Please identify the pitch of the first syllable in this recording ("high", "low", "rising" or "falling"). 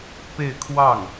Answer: falling